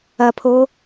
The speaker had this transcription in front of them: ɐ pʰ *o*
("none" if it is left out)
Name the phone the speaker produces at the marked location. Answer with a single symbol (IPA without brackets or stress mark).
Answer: o